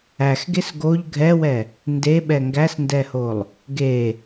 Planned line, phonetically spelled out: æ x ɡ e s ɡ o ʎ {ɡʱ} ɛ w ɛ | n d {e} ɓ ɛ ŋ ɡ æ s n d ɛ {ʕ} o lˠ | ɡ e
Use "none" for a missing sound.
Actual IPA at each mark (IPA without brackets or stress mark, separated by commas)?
ɡʱ, e, h